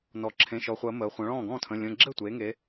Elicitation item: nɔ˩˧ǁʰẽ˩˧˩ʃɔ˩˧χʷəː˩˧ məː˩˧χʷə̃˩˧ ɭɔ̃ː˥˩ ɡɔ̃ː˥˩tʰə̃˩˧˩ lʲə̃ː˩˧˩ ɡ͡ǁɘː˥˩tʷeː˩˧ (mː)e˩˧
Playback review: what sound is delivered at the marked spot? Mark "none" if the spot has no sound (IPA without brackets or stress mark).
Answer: ŋ